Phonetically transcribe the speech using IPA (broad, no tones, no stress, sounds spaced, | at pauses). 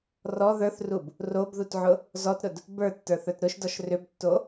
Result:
r ɔ ð ə˞ θ r u b | r o b ð u t ʕ ʊ | z ɔ t ɾ ʊ d | b ə˞ tː ə˞ θ ə˞ t ɾ ʊ ʃ d ɔ ʃ r ʏ b tː o